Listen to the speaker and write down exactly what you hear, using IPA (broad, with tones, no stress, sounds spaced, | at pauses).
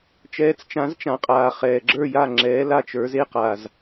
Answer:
t͡ʃ ɛː˩˥ t͡s t͡ʃ ã˩˥ z t͡ʃ ã˩ qʼ aː˩ χ ɛː˩ ɡ͡ǁ ə˞˥˩ j a˥˩ ŋ͡ǁ ɛː˩˥ l a˥˩ t͡ʃ ə˞˩˥ z e˥ q a˩ z